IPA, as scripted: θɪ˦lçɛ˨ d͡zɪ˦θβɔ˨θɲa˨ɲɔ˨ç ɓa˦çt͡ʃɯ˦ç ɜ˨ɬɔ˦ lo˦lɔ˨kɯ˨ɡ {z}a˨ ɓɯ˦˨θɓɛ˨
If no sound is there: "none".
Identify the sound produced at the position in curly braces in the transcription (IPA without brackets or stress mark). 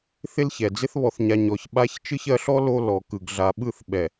ɮ